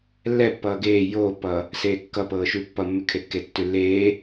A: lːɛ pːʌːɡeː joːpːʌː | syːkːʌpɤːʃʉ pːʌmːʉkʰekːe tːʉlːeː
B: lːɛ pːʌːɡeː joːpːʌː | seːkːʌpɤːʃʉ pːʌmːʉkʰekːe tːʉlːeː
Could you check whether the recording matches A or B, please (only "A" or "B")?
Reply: B